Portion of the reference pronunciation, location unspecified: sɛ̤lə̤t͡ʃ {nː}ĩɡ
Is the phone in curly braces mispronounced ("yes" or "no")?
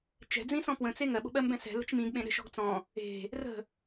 yes